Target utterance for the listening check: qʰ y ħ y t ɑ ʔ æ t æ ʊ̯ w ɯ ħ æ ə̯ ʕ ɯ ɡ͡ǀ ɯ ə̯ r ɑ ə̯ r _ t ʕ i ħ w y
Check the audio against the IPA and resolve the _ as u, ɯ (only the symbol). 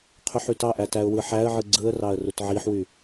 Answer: u